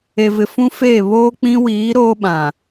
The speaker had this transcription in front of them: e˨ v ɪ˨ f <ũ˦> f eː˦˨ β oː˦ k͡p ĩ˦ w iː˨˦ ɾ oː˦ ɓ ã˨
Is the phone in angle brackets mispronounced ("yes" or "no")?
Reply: no